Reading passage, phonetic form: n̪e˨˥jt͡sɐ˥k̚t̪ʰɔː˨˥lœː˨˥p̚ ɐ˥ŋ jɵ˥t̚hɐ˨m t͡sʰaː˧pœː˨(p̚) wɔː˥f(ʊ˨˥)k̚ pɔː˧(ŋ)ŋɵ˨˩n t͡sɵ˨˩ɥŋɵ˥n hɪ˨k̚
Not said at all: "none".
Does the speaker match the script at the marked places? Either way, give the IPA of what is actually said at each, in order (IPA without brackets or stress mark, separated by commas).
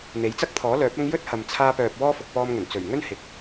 p̚, ʊ˨, m